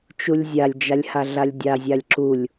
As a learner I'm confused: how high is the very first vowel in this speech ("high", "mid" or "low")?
high